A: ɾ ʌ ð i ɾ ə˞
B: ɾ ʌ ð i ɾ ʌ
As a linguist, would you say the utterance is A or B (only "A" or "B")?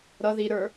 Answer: A